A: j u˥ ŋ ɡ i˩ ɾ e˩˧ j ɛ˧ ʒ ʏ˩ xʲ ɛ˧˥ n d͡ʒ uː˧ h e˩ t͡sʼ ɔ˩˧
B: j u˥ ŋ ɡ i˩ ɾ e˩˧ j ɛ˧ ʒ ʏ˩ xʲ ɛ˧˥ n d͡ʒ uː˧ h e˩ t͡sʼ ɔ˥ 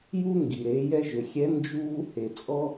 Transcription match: B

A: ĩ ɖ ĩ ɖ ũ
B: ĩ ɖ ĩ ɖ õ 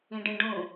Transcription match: A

